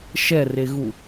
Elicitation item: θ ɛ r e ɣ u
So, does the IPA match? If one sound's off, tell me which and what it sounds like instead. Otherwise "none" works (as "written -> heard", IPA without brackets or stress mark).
θ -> ʃ